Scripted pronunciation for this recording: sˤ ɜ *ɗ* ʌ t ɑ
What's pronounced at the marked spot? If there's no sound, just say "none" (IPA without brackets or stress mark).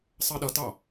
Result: ɗ